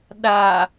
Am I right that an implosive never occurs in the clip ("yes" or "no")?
no